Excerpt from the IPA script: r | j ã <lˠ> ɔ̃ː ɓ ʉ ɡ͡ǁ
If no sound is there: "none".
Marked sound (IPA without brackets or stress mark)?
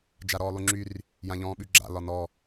ʎ